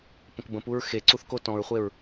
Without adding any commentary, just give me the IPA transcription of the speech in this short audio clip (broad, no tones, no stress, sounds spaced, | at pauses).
p ə̃ k b ə̃ p u ɹ x e ǀ u θ k o t ɔ̃ ɹ χʷ e ɹ